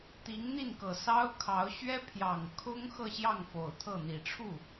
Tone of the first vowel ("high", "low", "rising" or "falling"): rising